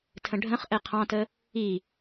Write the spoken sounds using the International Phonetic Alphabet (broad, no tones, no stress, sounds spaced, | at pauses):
tʰ ə̃ ɖʱ ə̃ χ ʔ ɛ qʰ ɑ̃ t ə | i